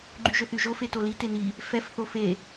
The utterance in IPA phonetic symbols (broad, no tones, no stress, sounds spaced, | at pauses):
ɡ͡ǃ y ʒ ɵ θ y ʒ o f e t o l i t e n i | f ɛ f θ o f e